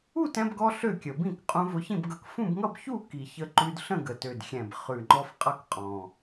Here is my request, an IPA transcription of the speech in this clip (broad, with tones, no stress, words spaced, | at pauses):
u˥˨tɛ̃˧bɡɔ˧ ɬø˥˨kʲə˨˩bĩ˥˨k qʼũ˧vʊ˧çĩ˥˨bɡʌ˧k fũ˥˨bŋʌ˥˨bçu˥˨ki˨˩ çə˧ ǃʉ˧dɬə̃˥˨ ɡə˨˩tø˨˩dxʲɛ̃˨˩b χʉ˨˩ŋ͡ǃɔ˧f qʼʌ˥˨kqʼɔ̃˨˩